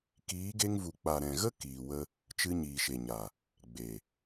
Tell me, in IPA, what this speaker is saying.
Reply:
kiː˨˦ɡe˧ŋvu˨k͡pa˨ ɾɛ̃˨ɣə˦ kiː˨wə˧ | t͡ʃɨ˧ɲiː˨ʃe˨ɲa˨ | ɡ͡be˨

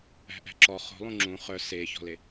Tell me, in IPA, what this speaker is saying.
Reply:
æ̤ʔæ̤ǁɔ χo̤lˠũ ŋ͡ǁũ χœ seçɔ̤le

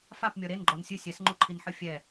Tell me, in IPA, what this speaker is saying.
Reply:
fapmʲɔ ɾenɡ͡ǃɔn sʲɨ sʲɛsŋ͡ǃuǃʰinħɨ fʲɛ

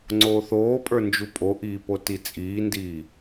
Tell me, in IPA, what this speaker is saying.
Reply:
ŋ͡ǀoːθoːpʼə˞ nd͡ʒupʼoʔiːpo tit͡sʼiːndiː

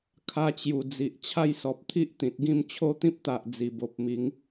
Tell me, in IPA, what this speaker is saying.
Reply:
kʰa˧t͡ɕju˨˩d͡zi˨ʔ t͡ɕʰa˥˧jsɔ˨p̚t̪ʰi˦ʔt̪ĩ˨t̚ ɡĩ˥˧m t͡ɕʰo˥˧t̪ĩ˦p̚t̪a˨ʔ d͡zi˨˩bo˨p̚mi˨˦ŋ

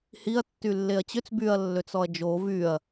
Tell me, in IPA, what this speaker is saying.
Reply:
hiɐ̯ tːylːeɐ̯t͡ɕøt͡s byɐ̯lːøt͡s ɔɐ̯d͡ʒo vyɐ̯

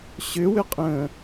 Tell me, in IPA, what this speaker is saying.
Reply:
ɕʏwʏqʼə̃ː

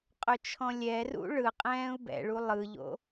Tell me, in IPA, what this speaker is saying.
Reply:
qʼɵt͡ʃʰɔ̃lʲɛrṵ ɭɯ qʼɛ̃ːu̯bɛ̰ɭu lˠɯʎo̰

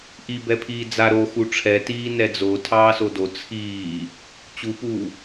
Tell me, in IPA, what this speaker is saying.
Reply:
ʔibɛpʰiː d͡za ɾo xuʈ͡ʂʰɛ tiːnɛd͡zo tʰɑːsodo t͡sʰiː | t͡ɕupuː

